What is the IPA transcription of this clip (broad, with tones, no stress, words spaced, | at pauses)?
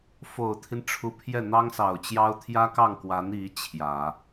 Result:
fo˨˩ʊ̯t̪ʰi˦n ʈ͡ʂʰu˧˥pʰjɛ˥˩ n̪ɑ˥ŋsɑ˨˩ʊ̯t͡ɕjɑ˥ʊ̯ t̪ʰjä˥kɑ˥˩ŋkwa˧˥n i˧˥ t͡ɕʰjä˨˩˦